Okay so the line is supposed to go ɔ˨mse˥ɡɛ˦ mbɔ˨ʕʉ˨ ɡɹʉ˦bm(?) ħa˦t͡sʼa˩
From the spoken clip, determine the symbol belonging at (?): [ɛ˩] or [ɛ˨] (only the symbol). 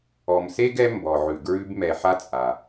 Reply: ɛ˨